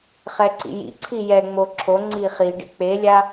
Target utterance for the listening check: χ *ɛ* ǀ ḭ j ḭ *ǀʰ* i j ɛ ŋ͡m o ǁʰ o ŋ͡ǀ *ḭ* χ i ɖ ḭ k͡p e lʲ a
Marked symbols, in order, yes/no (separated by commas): yes, yes, no